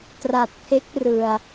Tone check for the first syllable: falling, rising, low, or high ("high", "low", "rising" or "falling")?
low